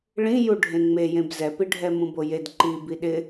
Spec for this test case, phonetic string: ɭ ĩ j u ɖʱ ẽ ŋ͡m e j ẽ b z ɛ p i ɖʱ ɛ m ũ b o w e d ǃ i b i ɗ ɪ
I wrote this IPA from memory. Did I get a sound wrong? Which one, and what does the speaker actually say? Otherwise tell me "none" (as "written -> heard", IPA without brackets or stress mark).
w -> j